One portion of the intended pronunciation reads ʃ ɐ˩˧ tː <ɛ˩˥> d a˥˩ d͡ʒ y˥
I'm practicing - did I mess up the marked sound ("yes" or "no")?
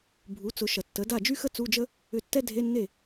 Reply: yes